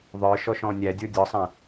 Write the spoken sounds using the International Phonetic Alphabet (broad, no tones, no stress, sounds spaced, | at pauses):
ðˤ ə˞ ʃ ɔ ʃ ɔ̃ nʲ æ dʲ ə˞ dʲ ɔ sˤ æ̃